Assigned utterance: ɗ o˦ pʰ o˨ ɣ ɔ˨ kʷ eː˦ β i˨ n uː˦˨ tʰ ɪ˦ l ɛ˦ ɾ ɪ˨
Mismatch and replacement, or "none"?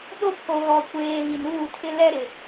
eː˦ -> eː˨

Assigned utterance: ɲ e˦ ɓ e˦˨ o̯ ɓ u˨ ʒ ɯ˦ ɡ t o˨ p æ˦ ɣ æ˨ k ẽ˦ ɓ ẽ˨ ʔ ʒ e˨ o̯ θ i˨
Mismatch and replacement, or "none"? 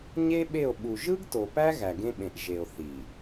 k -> ɡ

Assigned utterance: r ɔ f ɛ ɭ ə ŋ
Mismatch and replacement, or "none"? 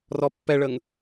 f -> pː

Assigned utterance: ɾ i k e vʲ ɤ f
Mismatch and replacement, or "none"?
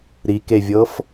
none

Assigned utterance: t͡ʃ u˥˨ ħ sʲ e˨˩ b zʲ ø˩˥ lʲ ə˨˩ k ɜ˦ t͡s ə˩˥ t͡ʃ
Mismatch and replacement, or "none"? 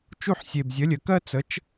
ø˩˥ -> ə˩˥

